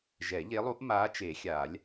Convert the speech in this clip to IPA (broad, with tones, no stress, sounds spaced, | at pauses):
ʒ ɛ˨˩˦ ʎ e˧˥ lˠ u˧˥ ʔ m aː˧˥ t͡ʃ e˨˩˦ xʲ aː˨˩˦ lʲ